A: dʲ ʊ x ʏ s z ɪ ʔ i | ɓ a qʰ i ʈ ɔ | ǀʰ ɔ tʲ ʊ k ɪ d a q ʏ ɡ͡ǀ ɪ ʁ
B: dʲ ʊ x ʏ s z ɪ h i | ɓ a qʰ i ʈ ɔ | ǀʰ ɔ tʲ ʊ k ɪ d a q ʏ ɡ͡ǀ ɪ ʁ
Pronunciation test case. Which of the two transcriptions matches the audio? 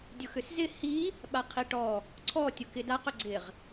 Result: B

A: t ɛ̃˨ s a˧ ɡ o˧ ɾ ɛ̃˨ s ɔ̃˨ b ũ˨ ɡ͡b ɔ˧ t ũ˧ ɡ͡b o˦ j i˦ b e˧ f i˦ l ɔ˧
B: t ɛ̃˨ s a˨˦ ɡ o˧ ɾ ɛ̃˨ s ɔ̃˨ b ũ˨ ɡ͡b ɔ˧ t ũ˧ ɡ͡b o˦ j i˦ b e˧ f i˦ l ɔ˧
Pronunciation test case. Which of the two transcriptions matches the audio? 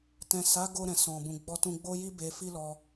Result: B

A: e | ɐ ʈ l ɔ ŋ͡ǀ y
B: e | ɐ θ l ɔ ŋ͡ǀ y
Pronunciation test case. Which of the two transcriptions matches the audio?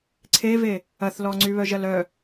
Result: B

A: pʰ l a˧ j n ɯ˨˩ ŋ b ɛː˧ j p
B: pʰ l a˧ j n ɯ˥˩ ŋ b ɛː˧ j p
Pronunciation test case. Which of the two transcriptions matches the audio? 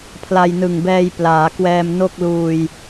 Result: A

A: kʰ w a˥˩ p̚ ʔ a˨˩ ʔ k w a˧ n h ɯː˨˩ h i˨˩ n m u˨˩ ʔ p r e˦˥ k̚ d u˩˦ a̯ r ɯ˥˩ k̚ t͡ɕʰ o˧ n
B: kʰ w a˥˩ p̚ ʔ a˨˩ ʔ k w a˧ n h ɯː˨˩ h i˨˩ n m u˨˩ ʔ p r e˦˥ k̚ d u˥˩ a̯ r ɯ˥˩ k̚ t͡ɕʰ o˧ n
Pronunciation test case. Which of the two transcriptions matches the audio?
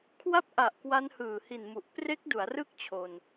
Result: A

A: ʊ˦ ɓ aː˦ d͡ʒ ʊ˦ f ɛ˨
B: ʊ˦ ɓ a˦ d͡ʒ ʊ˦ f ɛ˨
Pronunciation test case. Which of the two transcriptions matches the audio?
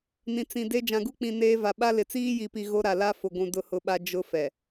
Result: B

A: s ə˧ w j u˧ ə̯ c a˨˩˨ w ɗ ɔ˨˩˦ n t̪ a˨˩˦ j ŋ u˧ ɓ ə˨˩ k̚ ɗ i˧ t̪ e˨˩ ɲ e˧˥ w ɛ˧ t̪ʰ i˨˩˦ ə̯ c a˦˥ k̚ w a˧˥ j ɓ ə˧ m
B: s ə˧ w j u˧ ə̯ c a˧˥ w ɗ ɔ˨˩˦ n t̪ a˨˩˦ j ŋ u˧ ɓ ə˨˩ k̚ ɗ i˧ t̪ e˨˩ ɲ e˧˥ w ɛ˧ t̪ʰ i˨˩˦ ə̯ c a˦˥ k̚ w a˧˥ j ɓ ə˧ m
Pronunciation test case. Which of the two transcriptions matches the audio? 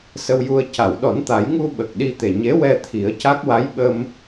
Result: A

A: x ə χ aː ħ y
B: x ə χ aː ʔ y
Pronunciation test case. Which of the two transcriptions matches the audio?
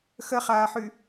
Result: A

